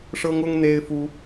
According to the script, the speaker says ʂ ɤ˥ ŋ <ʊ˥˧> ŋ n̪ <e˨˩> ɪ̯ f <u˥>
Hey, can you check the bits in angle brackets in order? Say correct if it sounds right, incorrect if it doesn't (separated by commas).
incorrect, incorrect, correct